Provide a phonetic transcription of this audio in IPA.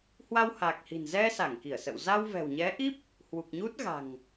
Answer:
hwa˧wha˨˩k̚hi̤˨˩n zɛ˧ sa˧˩ŋki˧˩ə̯sə̰˧˨w za˧wvɛ̤˨˩wɲɛ˨˦ʔi˦˥p̚ | hwu˨˩k̚ɲu˦˥t̚ɣa̤˨˩ŋ

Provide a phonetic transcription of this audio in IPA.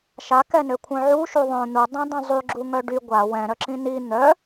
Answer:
ʃakɛnøkʷʰœ̃ ʕuʃu ðˤœ̃ n̪udˤĩdˤœ̃ zˤyɡ͡ǁuŋœ ɖy ɡʷa wɛ̃ɾœǁĩ ni n̪œ

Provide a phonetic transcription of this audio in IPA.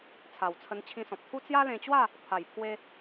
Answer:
t͡sʰa˨˩wt͡sʰə˧n t͡ɕʰĩ˧sɔ̃˨p̚t̪ʰu˦ t͡sja˦lẽ˧t͡ɕwa˥˧ | pʰa˨˩jpʰwe˧

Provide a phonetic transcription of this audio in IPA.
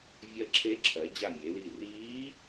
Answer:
vʲɜ˧˩ǁʰe˧˥ǁʰɜ˩˧d͡ʑa˧˩ mʲe˩˧li˧˩ riː˧˥

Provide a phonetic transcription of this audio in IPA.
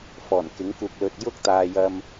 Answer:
fɔː˨˩nkɪ˨˥ŋkuː˨k̚lɵ˨t̚ jʊ˥k̚t̪aː˨jɐ˧m

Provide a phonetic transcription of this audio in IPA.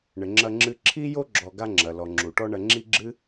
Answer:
ɳɘ˩ ŋ͡ǁɐ˧ŋ͡ǁɨ˧ ǁʰi˥jo˥ ɡ͡ǁɔ˧ɡa˥ŋ͡ǁɐ˩ lɔ˩ ŋ͡ǁu˩ʈɔ˥ɳɐ˧ ŋ͡ǁi˥ɡ͡ǁɨ˥

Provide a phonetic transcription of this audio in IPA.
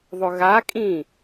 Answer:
ðˤʊɣakʼĩ

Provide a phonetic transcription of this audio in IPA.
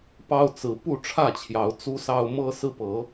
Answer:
pɑ˦ʊ̯t͡sɹ̩˨˦ pu˥˨ʈ͡ʂʰä˥˨t͡ɕʰjɑ˨˦ʊ̯ t͡su˦sɑ˦ʊ̯ mɤ˦sɹ̩˦pɤ˨˦

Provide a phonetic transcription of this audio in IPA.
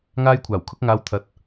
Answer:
ŋaː˥jkʷʰaː˨˩wkʰʊ˥k̚ŋaː˧w t̪ʰɐ˨˥t̚

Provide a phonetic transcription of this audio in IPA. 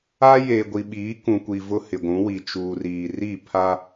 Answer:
a˦ jeː˨ɡʷi˨ɓiː˨˦ kũ˨kʷi˨ vʊ˦hɪ˨ɡʷũ˨˦ wi˨t͡ʃuː˨riː˨ri˦˨ pʰa˦

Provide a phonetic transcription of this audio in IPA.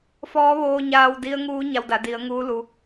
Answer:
fɔː˧˥ʋoː˧ɲaː˧wdi˧˥ə̯ ŋuː˧˥ ɲa˧wda˩˧ di˩˧ə̯ŋuː˧˥ lu˩˧

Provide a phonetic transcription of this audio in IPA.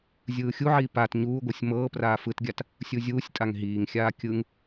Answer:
zʲɯːxʲuʕiː pat ɲuːɡʷɤsʲ mɤːpraː fɯtɡʲat | sʲuzʲuːsʲtʼaŋ ɦiːŋxʲaː kʲɯŋ

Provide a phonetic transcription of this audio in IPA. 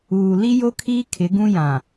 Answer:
uː˨ li˦jo˦kʰiː˦ kʰɪ˨˦ɡũ˦ jã˨

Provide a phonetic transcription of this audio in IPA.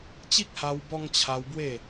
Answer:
t͡ɕi˦k̚ha˧wbɔ˧ŋ t͡ɕʰa˧w bwe˥˧

